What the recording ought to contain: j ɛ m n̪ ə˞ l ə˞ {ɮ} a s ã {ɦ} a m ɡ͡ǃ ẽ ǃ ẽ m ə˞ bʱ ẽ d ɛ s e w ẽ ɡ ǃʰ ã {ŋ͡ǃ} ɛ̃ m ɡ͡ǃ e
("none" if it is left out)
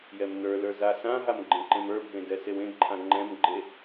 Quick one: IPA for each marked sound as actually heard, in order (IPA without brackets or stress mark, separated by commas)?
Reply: z, ɦ, ŋ͡ǃ